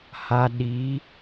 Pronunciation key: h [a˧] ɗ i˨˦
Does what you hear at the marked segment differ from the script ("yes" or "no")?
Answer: no